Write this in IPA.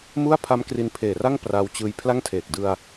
mu˥˩a̯pʰa˦˥m kri˧npʰeː˨˩ra˥˩ŋ praː˦˥wt͡ɕɯː˧j pʰla˥˩ŋtʰeː˨˩k̚ dɯ˧a̯

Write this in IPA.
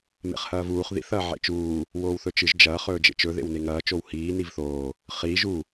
mḛχhɐːvuːχ ðḭθ ɐːʕḛt͡ʃuː | woːwθɵt͡ʃɨʒ d͡ʒɐː χɵːd͡ʒḛt͡ʃɵ ðḛwneŋɐː t͡ʃowhiː nivθoː | χiːʒ u

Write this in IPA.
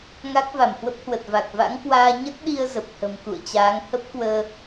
ŋa˦˥k̚va˧˩mhwə˦˥p̚hwə˨˩t̚ va˨˩k̚ va̰˧˥ŋkwaː˧ ɲə˦˥t̚ɗi˧ə̯ zə˨˩p̚hə̤˨˩m kṵ˧˨ə̯t͡ɕaː˨˦ŋ hə˦˥p̚kwəː˧

